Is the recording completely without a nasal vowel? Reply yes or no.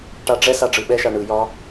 yes